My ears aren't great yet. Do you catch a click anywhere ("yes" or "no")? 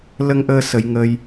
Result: no